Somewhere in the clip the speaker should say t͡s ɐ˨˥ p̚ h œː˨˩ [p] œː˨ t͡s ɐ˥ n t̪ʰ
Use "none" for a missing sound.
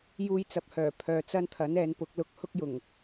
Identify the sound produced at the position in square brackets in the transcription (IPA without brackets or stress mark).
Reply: pʰ